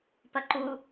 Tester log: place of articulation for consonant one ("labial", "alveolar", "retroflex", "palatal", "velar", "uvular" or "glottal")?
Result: labial